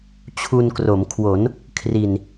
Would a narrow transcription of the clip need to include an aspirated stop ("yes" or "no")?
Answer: yes